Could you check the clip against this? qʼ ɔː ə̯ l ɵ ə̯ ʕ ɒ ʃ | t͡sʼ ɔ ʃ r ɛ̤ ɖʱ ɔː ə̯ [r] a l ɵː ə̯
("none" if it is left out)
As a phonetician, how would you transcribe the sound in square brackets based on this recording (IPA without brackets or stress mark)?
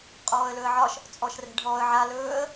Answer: ʕ